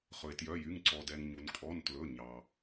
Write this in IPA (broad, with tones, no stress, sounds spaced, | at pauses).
χ ɵ˩ e̯ t j œ˩˧˩ j y˩˧˩ ŋ ǀ ɔ˩ d ɛ˩ ŋ ɲ u˩ n kʼ ɔ˩˧˩ n t l ɵ˩˧˩ ɲ ɑ˩